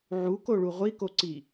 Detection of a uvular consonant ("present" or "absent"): present